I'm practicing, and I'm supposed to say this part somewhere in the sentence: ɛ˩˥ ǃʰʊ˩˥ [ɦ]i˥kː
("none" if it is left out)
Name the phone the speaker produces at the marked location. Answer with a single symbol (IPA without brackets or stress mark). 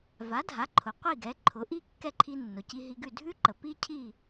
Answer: ʔ